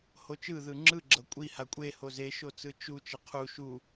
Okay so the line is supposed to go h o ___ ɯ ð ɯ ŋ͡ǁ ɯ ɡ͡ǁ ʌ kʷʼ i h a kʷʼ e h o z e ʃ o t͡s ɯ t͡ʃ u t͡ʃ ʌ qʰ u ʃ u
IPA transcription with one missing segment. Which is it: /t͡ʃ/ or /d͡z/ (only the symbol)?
t͡ʃ